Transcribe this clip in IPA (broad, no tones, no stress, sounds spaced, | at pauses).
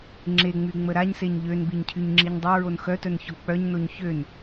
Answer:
ŋ͡ǁ e ŋ͡m y ŋ͡m ə ɾ a ɲ s e ɲ ʎ ø n b i ɲ cʰ y ɲ ŋ͡ǁ i ɲ dˤ o ɹ o n x œ t œ n ç ɔ k͡p œ ɲ n o ɲ ç ø n